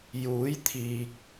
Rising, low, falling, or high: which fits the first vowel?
rising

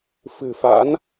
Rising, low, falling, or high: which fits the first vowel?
low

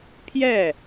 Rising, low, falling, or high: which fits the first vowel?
falling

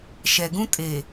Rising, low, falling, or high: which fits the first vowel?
low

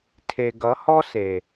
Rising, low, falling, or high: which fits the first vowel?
low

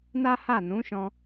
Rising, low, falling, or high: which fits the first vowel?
high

